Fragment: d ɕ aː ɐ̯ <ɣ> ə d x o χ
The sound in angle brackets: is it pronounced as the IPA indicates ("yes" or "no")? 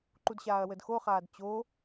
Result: no